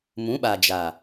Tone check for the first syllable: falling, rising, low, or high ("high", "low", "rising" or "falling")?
rising